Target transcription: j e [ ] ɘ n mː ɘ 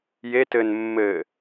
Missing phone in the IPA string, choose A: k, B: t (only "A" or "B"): B